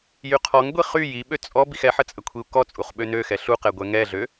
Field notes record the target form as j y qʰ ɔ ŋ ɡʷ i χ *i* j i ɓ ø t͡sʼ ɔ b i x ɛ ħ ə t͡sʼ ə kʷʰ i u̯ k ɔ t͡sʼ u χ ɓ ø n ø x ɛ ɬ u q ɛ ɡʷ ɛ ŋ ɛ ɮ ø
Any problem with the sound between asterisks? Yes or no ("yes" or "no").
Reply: yes